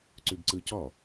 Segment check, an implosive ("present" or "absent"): absent